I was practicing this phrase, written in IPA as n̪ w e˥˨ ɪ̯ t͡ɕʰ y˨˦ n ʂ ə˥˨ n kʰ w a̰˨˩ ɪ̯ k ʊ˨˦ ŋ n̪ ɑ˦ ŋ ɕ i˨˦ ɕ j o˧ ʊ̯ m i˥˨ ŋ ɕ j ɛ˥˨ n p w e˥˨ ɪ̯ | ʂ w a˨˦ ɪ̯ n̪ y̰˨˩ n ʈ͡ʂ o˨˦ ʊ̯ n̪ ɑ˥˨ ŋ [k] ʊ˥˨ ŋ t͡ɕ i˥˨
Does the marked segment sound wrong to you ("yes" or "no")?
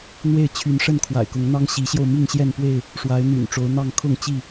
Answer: yes